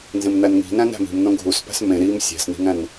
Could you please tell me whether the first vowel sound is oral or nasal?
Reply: nasal